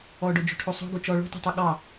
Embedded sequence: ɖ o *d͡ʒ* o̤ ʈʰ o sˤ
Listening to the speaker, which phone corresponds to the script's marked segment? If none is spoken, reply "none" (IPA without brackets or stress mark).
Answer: d͡ʒ